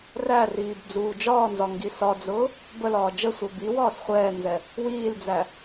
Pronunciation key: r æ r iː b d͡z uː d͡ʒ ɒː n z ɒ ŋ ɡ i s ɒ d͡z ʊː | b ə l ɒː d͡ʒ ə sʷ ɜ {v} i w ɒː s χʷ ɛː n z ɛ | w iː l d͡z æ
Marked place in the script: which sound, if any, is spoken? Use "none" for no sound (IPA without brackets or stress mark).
b